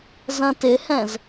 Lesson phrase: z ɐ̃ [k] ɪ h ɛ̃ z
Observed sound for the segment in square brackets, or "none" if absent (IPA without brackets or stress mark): t